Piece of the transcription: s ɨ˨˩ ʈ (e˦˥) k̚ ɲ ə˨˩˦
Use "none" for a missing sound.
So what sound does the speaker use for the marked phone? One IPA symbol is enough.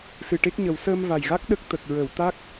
e˦˥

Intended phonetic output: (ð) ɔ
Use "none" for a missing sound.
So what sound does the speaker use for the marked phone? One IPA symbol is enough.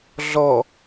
ɮ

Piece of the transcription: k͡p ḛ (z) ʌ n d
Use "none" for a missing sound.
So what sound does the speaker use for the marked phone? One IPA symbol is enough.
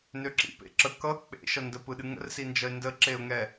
ʃ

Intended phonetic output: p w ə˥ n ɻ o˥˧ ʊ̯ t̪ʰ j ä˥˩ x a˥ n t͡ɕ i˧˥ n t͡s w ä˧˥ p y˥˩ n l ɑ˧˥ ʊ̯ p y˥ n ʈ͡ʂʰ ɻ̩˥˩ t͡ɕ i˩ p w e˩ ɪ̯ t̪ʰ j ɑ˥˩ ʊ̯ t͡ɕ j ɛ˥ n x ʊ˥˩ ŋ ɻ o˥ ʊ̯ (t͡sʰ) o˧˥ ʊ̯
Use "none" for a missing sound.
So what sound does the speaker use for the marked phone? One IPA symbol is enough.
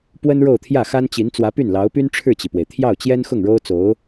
t͡s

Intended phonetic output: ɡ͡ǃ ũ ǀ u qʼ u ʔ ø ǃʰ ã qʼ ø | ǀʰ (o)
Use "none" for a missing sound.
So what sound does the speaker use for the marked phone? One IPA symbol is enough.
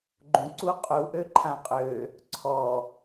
ɔ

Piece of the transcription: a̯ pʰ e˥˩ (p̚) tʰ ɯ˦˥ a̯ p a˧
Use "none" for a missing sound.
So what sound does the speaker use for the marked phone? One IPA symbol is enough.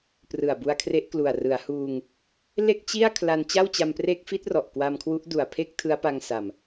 k̚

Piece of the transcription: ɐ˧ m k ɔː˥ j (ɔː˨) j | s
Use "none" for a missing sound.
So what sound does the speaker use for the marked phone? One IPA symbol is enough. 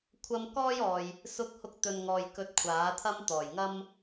ɔː˨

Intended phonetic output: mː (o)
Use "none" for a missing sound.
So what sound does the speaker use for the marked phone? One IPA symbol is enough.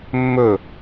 ɵ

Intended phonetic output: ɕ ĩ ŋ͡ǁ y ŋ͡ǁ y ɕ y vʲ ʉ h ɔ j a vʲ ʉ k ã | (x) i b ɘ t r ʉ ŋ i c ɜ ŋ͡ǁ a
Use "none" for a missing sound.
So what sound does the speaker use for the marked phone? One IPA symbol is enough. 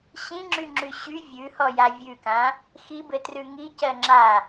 x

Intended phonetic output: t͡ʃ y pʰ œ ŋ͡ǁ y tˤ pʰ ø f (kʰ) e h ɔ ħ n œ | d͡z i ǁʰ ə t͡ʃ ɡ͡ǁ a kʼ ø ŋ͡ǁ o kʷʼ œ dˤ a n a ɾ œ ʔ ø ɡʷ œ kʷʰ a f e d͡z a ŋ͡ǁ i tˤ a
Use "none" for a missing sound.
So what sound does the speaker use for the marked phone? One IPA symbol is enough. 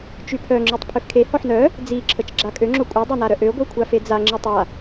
kʰ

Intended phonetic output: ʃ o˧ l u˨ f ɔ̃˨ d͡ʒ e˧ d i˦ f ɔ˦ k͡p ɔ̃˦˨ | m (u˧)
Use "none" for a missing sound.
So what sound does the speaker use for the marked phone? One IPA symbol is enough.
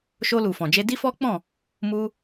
u˧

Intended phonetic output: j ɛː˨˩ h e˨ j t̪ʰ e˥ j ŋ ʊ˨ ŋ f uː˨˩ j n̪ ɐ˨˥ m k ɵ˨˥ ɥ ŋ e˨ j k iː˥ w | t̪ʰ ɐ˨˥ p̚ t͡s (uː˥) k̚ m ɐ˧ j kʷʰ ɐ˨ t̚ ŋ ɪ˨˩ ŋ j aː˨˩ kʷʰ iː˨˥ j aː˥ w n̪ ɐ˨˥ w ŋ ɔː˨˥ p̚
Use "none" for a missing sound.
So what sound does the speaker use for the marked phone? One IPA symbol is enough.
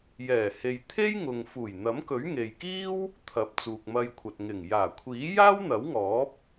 uː˨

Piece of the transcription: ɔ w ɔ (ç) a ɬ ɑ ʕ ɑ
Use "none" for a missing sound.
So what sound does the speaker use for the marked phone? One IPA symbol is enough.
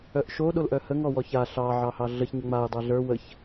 ç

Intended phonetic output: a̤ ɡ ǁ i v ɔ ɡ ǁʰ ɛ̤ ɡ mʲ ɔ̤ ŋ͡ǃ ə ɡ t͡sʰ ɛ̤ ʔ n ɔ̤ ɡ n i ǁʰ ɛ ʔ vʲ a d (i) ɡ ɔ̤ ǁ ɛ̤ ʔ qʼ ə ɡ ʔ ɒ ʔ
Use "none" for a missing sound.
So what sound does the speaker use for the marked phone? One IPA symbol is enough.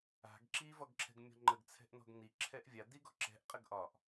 i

